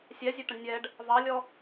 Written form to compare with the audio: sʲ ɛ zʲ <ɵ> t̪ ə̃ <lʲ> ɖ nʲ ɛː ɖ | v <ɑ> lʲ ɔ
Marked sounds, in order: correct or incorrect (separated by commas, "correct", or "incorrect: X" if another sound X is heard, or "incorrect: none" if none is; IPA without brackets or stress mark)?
correct, incorrect: none, correct